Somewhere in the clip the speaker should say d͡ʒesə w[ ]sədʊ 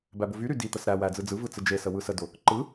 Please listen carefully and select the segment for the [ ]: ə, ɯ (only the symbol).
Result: ɯ